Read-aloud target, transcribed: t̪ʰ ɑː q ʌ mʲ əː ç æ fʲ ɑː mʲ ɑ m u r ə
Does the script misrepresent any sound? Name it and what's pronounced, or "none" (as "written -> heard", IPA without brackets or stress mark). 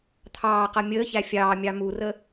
none